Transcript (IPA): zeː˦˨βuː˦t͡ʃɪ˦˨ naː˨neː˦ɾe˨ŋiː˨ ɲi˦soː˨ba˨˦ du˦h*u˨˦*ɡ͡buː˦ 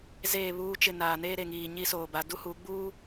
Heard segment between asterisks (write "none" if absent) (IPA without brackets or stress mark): u˨˦